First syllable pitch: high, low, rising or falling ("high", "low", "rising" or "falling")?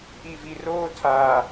low